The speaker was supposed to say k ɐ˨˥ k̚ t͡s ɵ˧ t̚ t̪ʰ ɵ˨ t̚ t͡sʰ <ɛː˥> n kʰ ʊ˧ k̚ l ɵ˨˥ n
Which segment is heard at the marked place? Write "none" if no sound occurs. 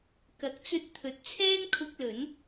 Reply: ɛː˥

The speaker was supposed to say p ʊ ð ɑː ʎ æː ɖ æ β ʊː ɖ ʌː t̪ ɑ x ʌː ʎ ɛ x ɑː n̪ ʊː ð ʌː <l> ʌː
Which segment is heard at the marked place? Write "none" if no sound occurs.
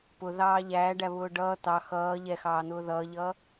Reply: ʎ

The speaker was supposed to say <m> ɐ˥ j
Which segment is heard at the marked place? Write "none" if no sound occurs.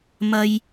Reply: m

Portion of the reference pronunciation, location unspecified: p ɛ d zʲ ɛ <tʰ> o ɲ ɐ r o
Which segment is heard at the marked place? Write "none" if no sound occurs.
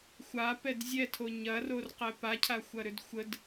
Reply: tʰ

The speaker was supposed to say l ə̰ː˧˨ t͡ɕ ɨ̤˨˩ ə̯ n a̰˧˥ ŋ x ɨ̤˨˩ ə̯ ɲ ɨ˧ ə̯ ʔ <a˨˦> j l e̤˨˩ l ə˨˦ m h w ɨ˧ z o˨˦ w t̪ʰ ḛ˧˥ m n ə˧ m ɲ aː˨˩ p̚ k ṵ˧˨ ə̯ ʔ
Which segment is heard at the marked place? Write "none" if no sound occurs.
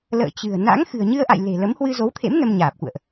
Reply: a̰˧˨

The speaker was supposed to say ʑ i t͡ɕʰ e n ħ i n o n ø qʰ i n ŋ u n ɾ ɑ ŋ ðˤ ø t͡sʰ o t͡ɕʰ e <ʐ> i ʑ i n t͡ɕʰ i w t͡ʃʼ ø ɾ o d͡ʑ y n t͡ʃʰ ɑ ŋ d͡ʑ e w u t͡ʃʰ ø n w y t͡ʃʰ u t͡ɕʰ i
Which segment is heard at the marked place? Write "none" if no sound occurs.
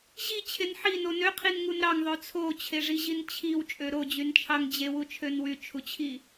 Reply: ʐ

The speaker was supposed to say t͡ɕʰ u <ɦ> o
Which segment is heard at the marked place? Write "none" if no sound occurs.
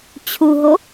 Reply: ɦ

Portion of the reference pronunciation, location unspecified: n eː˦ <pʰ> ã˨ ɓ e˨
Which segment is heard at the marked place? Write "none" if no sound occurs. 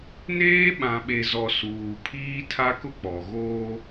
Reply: ɓ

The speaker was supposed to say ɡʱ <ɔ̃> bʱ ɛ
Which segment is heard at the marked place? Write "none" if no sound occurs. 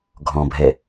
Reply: ɔ̃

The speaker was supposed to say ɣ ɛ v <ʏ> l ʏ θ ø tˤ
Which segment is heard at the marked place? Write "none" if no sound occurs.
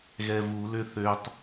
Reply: u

